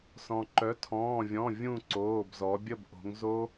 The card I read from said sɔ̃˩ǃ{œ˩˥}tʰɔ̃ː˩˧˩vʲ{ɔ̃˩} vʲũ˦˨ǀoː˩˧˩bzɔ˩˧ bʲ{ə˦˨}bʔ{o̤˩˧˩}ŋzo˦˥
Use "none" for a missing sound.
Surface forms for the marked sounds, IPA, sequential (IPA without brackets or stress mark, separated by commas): œ˩˥, ɔ̃˩˧˩, ə˦˨, o̤˩˧